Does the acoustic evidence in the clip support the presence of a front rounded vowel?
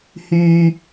yes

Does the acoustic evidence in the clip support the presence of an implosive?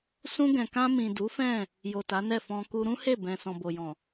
no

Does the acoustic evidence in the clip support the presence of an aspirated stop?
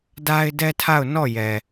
yes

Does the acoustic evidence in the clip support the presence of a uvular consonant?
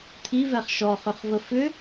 yes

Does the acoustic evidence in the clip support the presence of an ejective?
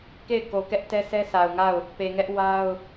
no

